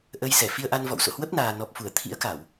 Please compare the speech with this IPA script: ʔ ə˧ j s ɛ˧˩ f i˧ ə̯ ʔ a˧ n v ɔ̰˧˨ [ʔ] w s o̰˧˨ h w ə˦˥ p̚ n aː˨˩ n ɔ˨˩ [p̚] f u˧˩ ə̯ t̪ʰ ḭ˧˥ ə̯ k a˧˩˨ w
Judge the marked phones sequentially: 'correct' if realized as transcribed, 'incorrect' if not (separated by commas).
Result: incorrect, correct